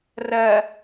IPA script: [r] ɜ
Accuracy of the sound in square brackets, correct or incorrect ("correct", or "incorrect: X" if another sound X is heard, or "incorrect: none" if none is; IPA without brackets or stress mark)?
correct